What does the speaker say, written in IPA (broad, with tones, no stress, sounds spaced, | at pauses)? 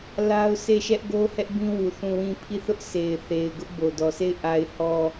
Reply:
l a˦ ʊ̯ s e˦˨ ʃ ɛ˦ ʔ ɡ o˦ h ɛ˦ ʔ b ĩ˦ w u˨ θ ũ˦˨ w ĩ˦˨ pʰ i˦˨ θ ʊ˦ ʔ s e˨ ɪ̯ θ e˨ ɪ̯ ɡ ʊ˦ ʔ b o˨ d ɔ˨ sʰ e˦˨ ɪ̯ ʔ a˨ ɪ̯ h ɔ˨